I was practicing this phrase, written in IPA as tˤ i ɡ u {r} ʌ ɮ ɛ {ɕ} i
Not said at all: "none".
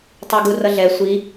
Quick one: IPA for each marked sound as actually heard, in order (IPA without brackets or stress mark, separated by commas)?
r, sʷ